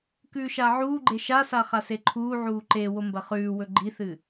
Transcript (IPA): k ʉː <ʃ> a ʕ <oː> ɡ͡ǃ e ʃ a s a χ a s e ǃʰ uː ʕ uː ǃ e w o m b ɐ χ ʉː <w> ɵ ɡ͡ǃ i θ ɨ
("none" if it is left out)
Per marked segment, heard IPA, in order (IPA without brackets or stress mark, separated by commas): ʃ, uː, w